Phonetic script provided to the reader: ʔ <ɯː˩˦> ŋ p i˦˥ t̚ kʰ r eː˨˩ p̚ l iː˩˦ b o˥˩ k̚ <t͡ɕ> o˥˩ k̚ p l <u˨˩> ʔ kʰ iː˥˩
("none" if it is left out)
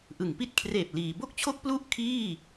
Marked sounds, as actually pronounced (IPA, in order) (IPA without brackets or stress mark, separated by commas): ɯ˩˦, t͡ɕʰ, u˥˩